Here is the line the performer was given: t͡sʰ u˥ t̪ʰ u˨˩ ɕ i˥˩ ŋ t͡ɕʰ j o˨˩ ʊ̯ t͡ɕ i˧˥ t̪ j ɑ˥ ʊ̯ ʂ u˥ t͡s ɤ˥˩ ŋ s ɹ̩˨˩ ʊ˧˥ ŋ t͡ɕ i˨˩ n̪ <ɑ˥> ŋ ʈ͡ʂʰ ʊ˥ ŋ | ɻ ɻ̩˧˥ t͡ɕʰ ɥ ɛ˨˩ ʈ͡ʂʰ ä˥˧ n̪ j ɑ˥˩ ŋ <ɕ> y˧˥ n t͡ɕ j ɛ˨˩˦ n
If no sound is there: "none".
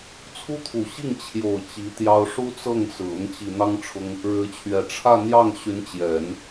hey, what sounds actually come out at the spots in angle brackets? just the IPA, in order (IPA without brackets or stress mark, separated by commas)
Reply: ɑ˥, ɕ